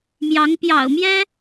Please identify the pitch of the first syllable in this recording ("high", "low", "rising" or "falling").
rising